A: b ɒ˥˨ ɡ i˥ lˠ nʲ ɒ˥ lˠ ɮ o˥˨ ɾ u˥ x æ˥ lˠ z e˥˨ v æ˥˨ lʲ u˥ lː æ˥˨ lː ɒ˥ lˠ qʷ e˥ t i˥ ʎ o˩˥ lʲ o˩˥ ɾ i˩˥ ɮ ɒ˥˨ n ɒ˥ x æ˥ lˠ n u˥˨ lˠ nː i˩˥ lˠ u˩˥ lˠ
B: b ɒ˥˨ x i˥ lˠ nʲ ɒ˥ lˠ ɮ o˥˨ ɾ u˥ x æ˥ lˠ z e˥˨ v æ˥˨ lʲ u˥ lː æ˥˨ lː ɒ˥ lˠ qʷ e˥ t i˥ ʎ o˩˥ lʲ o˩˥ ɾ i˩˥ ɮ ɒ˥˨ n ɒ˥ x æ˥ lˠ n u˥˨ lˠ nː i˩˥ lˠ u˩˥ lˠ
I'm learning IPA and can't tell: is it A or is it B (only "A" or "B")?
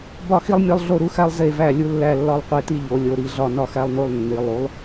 B